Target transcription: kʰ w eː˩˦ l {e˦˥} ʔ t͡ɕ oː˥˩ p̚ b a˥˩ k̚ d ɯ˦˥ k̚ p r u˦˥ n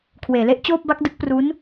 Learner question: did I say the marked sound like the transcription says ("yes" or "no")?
yes